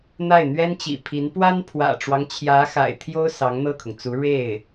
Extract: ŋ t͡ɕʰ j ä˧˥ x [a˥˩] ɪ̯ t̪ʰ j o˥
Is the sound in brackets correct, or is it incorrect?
incorrect